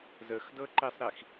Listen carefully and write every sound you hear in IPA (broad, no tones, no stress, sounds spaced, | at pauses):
z ə x d ɤ ǃ i sˤ ɾ i x